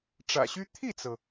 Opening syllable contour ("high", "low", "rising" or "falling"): low